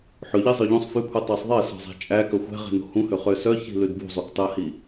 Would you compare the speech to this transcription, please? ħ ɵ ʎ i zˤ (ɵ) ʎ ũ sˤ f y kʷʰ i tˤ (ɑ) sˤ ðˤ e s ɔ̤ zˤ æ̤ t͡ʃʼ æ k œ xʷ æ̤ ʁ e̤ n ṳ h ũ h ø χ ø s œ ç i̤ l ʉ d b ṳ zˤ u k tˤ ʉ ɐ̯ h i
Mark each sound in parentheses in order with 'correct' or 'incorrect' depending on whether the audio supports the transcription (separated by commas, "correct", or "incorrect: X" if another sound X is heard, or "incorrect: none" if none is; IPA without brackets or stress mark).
incorrect: œ, correct